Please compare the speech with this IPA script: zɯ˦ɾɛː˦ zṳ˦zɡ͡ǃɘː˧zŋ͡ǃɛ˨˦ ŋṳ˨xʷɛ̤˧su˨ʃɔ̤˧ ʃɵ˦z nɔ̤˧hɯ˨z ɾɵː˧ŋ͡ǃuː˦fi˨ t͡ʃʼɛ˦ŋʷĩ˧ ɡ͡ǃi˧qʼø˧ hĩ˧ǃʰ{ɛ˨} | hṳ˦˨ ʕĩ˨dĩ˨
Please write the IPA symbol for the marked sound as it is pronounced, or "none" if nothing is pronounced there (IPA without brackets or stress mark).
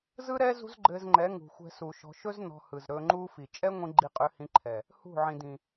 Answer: ɛ˨